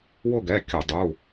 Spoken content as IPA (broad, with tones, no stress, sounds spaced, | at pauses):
w ʊ˦˨ ɡ ɛ˩˧˩ kʲ ʊ˧˩˧ dˤ u˩˧˩